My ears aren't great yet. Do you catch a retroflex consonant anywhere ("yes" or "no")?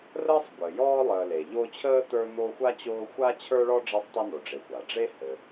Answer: yes